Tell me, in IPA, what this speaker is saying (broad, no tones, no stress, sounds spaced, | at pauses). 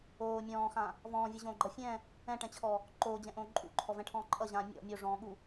oː mʲ ɔ̃ː x ã | v ɔ̃ː vʲ ɨ ʑ õː ɡ͡ǃ ʌ fʲ ɛ̃ | ɛ̃ ʈ ɛ̃ t͡ɕʰ ɔ | ǃ oː d͡ʑ ɛ̃ ʔ õː ǃʼ ṵ ǃʰ ɔ v ɛ̃ ʈʰ ɔ̃ː ǃʼ ʌ ʑ ãː mʲ ɔ̰ mʲ o ʐ ɔ̃ː ɠ u